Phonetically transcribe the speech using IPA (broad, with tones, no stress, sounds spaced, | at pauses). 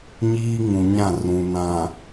ɲ iː˦ ŋ ũ˨ ɲ ã˦˨ r ũ˨ n ã˨